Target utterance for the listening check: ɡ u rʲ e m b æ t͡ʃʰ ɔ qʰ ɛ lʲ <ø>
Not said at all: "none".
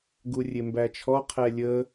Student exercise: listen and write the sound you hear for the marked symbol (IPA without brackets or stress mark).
ə